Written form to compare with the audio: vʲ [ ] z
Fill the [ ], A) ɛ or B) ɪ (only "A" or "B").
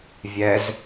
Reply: A